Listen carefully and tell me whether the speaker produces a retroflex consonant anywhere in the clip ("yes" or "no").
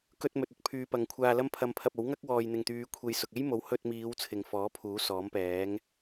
no